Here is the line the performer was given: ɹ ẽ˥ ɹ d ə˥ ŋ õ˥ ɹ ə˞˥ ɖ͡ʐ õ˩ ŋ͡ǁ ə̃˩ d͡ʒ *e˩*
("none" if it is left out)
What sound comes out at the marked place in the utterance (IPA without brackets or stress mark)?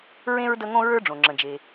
e˩